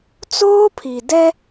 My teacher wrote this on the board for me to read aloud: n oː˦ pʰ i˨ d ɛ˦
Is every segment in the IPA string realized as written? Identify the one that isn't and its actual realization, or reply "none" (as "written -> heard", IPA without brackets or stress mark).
n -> t͡s